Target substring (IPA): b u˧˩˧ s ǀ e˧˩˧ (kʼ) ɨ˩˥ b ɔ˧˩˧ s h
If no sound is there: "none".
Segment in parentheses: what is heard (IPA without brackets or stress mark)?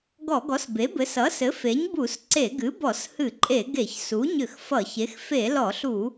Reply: ɡ